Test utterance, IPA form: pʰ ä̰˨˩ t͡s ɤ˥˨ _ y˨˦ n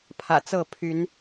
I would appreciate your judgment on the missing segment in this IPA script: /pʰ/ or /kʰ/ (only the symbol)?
pʰ